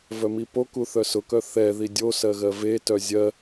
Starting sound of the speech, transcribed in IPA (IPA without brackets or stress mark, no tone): v